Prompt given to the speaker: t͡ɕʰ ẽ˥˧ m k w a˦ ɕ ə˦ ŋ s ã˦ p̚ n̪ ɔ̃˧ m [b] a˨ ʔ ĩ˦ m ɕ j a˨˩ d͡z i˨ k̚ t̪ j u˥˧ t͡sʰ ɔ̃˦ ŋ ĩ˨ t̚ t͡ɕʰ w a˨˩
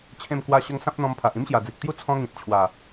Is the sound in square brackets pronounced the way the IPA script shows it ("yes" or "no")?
no